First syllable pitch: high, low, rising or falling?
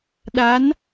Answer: rising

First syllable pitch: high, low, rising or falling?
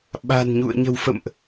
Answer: low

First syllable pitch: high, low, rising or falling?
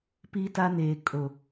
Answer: high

